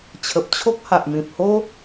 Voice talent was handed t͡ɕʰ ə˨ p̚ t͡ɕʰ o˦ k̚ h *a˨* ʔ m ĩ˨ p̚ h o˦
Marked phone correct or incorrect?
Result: correct